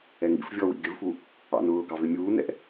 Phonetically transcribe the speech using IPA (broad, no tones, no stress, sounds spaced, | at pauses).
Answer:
ɛ ŋ ḭ f vʲ ɔː w ḭ ɡ ɪ v f u | ɑ̰ n ʊː ɡ ɑ v ɪ mʲ uː n ɛ̰ ʔ